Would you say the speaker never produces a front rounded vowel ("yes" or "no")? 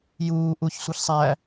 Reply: yes